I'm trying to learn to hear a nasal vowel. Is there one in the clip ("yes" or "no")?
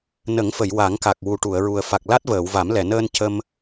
no